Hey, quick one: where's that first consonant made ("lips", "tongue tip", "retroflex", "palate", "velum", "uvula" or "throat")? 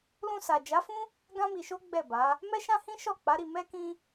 tongue tip